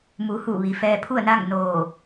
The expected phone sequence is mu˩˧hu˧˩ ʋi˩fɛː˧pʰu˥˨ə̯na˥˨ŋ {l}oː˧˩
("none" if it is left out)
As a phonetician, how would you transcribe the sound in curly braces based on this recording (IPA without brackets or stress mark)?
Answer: n